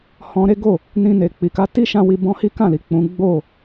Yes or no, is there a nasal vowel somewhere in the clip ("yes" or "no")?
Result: yes